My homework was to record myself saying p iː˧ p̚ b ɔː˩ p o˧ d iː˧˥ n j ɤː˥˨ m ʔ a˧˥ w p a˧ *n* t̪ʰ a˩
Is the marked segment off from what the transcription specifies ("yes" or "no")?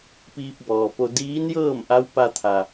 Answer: yes